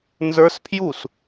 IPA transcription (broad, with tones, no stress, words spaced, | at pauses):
nzə˞˦˥spʰju˥˨s